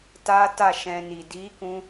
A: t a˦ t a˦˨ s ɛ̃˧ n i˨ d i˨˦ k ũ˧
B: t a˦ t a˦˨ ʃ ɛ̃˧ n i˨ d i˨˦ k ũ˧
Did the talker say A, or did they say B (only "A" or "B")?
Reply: B